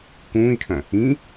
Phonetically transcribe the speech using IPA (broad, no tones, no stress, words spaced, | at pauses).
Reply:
kũːi̯kʰɐ̃ | ĩ